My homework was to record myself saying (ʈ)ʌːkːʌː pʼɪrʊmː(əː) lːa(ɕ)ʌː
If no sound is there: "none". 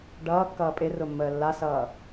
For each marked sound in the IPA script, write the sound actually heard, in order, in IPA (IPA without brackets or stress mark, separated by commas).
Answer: ɖ, əː, s